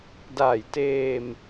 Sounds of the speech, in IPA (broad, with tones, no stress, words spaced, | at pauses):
daː˨˩jteː˧m